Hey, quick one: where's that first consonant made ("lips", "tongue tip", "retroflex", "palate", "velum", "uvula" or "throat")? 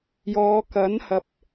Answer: palate